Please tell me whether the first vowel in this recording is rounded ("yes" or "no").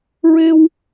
no